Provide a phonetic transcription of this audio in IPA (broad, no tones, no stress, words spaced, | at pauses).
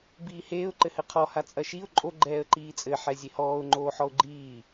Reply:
biːheːʊ̯ ǃɘhɘqʰɔ hat͡sʼɐʃiʊ̯ ǃʼo ɡ͡ǃɛːə̯ǃiːt͡sʼɘ ħɛzʲehɔːʊ̯ ŋ͡ǃoːħɔʊ̯ɡ͡ǃiː